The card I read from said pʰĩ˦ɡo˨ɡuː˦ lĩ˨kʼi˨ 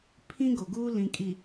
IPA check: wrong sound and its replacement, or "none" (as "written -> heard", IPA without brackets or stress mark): none